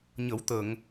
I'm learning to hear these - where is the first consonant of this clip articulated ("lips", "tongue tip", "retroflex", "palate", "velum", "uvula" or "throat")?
palate